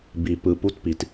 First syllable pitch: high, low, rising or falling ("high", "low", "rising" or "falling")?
low